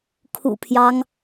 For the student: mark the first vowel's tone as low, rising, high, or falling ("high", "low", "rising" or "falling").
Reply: low